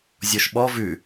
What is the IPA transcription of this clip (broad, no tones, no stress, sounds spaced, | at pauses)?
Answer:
zʲ ɔ ʃ ɓ ɔ v ʉ